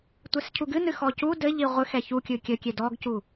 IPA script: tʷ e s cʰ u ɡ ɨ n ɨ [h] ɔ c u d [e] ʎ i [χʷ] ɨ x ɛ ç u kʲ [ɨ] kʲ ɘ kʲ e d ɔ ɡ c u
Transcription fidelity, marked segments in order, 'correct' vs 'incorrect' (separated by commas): incorrect, incorrect, incorrect, correct